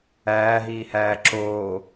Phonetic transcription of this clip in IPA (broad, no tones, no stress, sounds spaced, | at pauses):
æː ɦ iː h æː ǁ oː